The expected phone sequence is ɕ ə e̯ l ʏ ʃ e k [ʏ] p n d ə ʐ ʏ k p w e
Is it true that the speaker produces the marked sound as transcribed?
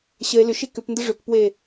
yes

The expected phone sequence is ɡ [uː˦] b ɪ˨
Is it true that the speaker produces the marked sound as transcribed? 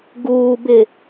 no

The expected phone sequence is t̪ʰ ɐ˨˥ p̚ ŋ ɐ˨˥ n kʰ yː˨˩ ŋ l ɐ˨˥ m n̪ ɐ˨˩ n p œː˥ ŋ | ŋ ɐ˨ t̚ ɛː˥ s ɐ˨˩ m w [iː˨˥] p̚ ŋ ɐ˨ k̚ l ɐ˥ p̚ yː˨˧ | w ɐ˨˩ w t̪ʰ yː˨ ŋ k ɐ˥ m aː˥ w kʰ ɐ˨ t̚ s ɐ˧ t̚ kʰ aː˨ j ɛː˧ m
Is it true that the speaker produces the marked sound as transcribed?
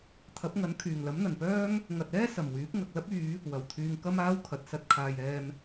no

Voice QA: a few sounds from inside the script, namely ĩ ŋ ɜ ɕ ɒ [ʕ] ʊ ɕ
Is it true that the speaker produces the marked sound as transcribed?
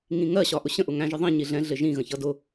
no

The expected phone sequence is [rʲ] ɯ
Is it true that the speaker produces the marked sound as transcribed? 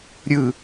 no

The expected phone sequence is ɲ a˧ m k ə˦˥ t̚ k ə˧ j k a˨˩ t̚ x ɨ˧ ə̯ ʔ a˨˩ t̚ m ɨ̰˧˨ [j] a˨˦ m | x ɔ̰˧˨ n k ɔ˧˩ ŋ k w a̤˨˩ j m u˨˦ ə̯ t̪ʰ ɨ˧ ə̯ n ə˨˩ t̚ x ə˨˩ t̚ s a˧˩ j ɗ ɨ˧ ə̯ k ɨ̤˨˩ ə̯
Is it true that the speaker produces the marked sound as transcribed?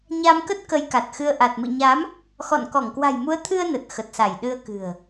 no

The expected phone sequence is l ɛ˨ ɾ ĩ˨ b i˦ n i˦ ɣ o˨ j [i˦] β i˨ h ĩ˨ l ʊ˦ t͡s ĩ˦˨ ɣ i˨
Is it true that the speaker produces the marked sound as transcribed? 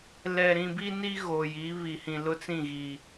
no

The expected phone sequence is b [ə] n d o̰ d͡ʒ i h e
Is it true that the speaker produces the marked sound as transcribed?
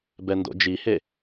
no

